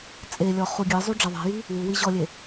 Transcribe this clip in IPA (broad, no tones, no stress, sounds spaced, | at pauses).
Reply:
t͡sʼ e lʲ ɔ χ u ɡʲ ɨ zˤ u ɖ͡ʐ ɐ ðˤ i̤ j i | w u w i ʑ ɔ lʲ e